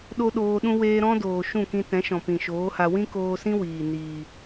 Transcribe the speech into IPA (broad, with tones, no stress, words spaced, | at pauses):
ɗo˦ɗoː˧ɗũ˦ weː˧ɾɔ̃˦ doː˨ʃũ˦˨kĩ˧ tɛ̃˨˦ ʃɔ̃˨pĩ˨ʃoː˨˦ha˧ wĩ˦koː˧sĩ˦ wiː˨ niː˨